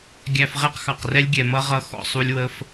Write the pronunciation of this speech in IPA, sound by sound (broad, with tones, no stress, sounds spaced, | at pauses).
ɡʲ æ˧ f ʁ ɛ˦ q x ɑ˨ q r ɛ˦ lʲ ɡʲ ɛ˨ m ʌ˦ ʁ ʌ˧ x ɔ̰˦˨ sˤ u˦ lʲ w ə˦ f